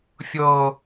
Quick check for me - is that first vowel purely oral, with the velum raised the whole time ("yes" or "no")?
yes